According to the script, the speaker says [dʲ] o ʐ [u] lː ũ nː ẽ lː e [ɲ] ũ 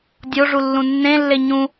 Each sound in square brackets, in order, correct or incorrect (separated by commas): correct, correct, correct